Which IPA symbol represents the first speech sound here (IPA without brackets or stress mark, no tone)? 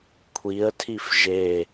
kʷʰ